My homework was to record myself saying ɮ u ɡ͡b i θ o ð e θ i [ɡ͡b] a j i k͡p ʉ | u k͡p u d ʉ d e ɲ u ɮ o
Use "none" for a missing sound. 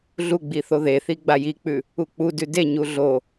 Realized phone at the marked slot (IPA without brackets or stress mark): ɡ͡b